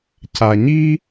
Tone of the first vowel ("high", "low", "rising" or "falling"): low